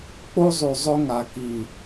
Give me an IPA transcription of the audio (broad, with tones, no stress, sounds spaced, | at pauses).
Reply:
k͡p o˦ zˤ ʉ˨ zˤ ɵ˦ ŋ a˨ k i˨